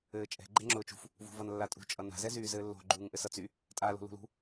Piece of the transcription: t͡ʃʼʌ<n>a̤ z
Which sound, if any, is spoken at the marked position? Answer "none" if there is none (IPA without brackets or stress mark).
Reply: n